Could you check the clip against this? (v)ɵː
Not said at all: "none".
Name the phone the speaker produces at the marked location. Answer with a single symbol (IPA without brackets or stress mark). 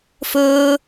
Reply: f